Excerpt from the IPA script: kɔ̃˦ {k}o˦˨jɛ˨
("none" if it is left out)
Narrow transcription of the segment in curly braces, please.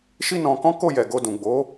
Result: k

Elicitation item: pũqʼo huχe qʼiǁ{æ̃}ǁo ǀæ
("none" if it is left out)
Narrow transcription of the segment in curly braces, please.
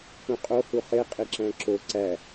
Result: æ̃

